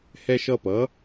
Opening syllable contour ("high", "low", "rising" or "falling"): high